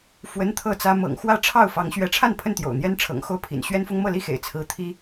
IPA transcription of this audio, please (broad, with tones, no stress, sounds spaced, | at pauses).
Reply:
f w ə˦ n t̪ʰ ɤ˥˨ t͡s ä˦ m ɤ̰˨˩ ŋ x w ä˥˨ ʈ͡ʂʰ ɑ˥˨ ʊ̯ f ɑ˨˦ ŋ ɕ ɥ ɛ˨˦ ʈ͡ʂʰ a˥˨ n pʰ ə˥˨ n t̪ j o̰˨˩ ʊ̯ n̪ j ɛ˦ n ʈ͡ʂʰ ɤ̰˨˩ ŋ x o˥˨ ʊ̯ pʰ ḭ˨˩ n ɕ ɥ ɛ˦ n f ʊ˦ ŋ m ɤ˥˨ l i˥˨ x ḛ˨˩ ɪ̯ t͡sʰ ɹ̩˨˦ t̪ʰ i˦